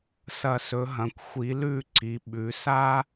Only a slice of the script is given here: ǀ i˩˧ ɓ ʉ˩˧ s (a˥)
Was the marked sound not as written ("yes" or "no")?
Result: no